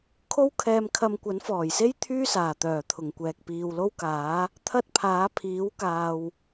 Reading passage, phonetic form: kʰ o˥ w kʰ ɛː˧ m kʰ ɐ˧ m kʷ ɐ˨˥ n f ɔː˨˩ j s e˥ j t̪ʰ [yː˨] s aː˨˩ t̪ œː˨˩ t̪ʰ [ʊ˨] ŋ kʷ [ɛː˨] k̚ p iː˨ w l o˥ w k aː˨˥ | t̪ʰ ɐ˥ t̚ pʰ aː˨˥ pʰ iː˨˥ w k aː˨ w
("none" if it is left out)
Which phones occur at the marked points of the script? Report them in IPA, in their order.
yː˥, ʊ˨˩, ɛː˨

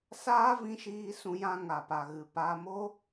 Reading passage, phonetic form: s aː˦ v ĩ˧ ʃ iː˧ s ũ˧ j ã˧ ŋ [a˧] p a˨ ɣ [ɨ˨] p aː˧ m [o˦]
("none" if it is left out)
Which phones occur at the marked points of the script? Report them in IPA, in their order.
a˨, ɨ˨, o˦

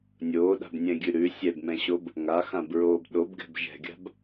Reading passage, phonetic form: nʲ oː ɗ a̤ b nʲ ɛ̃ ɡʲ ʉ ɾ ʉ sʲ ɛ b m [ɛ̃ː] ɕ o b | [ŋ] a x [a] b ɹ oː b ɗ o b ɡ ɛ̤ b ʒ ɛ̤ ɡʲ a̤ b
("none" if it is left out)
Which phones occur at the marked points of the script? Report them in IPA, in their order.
ɛ̃, ŋ, ã

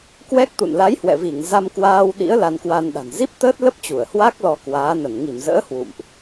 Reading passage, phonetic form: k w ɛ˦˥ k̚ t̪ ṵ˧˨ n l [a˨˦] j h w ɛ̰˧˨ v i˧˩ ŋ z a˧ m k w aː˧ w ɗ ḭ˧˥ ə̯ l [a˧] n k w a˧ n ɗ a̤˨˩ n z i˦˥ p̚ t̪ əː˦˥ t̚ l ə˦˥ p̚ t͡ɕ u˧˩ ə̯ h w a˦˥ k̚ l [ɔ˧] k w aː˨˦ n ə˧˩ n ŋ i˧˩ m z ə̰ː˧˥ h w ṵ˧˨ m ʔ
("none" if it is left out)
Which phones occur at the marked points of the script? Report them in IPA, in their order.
a˨˦, a˧, ɔ˧

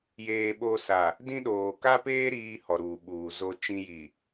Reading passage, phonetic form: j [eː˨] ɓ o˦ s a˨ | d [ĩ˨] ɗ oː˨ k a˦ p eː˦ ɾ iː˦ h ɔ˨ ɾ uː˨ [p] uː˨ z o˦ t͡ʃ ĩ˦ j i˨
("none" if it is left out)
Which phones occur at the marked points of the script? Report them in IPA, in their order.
eː˦, ĩ˦, ɓ

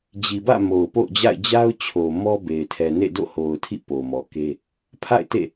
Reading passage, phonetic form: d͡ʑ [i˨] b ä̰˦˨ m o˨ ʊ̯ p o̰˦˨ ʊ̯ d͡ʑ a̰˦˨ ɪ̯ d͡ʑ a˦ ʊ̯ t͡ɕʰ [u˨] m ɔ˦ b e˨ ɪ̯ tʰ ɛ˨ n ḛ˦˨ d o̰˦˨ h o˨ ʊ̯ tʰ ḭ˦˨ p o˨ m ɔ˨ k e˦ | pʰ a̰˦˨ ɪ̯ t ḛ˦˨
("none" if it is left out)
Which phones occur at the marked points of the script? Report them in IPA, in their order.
i˨, o˨

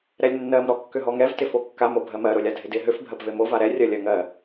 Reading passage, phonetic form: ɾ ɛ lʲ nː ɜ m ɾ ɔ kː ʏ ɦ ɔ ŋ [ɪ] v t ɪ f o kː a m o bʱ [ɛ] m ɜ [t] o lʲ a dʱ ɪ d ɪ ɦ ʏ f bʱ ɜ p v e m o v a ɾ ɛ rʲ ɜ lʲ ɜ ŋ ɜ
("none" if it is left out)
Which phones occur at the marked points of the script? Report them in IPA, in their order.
ɛ, ɜ, ɾ

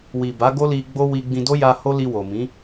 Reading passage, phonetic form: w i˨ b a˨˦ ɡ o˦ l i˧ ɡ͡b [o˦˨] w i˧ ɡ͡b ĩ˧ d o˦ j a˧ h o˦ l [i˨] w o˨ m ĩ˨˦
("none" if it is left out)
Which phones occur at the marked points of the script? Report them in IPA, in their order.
o˦, i˧

